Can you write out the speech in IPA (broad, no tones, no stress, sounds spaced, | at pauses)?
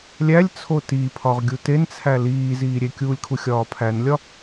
lʲ æ lʲ t͡sʰ o t i pʰ ɒ ʁ ɡʲ u t e n t͡sʰ æ l iː z iː ɾʲ e kʲ uː lʲ kʰ u xʲ ɒː pʰ æ n lʲ ɒ